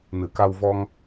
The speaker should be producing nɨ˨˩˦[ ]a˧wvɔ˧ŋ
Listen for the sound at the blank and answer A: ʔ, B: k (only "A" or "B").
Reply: B